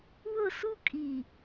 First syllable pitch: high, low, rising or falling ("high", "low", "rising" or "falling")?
falling